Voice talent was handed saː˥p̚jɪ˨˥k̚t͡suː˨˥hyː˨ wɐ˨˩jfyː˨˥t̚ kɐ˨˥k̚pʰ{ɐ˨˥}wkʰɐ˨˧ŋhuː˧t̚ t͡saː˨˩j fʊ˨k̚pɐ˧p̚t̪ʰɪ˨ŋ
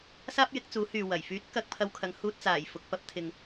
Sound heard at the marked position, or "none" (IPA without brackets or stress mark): ɐ˧